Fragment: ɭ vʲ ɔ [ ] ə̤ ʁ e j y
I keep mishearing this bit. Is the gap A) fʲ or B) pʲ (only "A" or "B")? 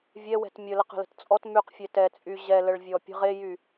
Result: B